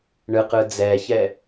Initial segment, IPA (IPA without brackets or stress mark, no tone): ɳ